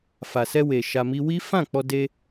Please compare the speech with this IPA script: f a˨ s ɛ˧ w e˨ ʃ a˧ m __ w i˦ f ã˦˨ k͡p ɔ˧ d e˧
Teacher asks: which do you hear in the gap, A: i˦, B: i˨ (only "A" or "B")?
A